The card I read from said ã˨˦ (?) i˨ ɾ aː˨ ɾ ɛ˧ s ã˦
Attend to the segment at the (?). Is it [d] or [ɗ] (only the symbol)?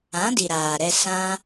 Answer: d